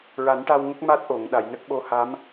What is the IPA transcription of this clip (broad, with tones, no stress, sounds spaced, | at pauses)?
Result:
ɹ a˨˩˦ n ʈ a˧ w ŋ ə˦˥ k̚ m a˦˥ t̚ ʔ o˨˩˨ ŋ ɗ a˨˩˨ j n ə˦˥ k̚ ɓ o˧˥ h a˧˥ m